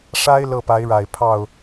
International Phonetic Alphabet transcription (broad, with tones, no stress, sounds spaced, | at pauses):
ʂ a˥ ɪ̯ l ɤ˥˩ p a˧˥ ɪ̯ ɻ a˨˩ ɪ̯ pʰ ɑ˥˩ ʊ̯